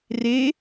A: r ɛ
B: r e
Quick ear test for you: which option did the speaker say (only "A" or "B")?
B